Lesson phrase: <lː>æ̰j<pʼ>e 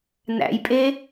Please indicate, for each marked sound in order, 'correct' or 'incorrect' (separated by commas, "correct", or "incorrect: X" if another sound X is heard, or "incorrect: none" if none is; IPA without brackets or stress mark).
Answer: incorrect: n, correct